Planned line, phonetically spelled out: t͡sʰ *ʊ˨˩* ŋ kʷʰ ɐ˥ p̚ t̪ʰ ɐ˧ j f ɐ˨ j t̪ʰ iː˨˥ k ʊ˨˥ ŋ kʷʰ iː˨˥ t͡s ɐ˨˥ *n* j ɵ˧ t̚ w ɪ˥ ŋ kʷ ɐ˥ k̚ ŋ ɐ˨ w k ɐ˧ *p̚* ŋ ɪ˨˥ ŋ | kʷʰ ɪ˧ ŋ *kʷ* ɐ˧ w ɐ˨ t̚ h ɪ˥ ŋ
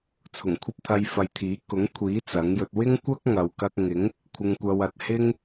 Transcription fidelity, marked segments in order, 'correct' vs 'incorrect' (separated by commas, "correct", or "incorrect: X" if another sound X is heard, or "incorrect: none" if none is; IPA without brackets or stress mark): correct, incorrect: ŋ, incorrect: k̚, correct